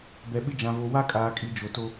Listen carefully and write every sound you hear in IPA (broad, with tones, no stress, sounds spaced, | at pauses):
b ɛ˨ ɓ ɪ˦ d͡ʒ ã˨ v o˨ w a˦ kʼ aː˨ kʼ i˨ d͡ʒ o˨ t o˦